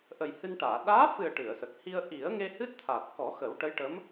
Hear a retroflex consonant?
yes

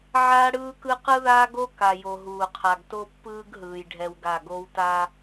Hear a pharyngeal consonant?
yes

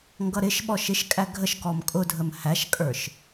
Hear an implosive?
yes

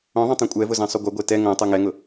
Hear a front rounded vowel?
yes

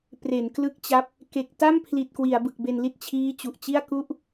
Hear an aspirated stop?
yes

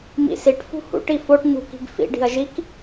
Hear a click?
no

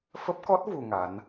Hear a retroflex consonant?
no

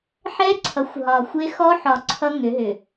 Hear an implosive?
no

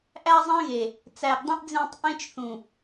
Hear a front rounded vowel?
no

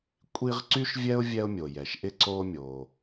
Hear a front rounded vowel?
yes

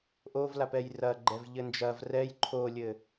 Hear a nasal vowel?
no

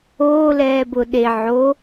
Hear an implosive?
yes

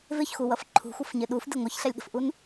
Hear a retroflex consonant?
no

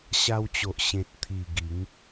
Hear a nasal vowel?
yes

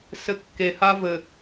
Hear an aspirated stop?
no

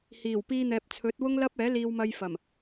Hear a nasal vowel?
no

